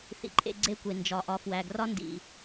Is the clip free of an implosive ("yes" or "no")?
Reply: yes